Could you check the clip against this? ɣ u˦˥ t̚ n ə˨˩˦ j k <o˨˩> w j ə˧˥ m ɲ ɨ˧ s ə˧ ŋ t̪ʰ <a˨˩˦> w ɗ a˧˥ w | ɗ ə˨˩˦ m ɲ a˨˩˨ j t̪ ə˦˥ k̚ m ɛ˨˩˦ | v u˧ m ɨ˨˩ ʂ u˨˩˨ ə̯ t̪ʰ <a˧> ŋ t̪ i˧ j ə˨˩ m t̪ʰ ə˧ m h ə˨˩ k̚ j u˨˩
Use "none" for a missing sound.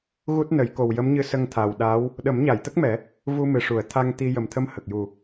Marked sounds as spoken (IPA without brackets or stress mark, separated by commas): o˨˩, a˨˩, a˧